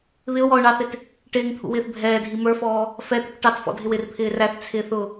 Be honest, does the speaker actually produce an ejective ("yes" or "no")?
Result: no